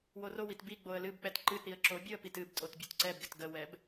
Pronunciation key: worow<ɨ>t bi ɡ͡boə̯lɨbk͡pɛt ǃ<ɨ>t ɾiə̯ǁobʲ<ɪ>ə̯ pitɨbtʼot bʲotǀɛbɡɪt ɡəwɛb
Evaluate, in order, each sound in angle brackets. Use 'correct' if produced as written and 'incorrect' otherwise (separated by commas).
incorrect, correct, incorrect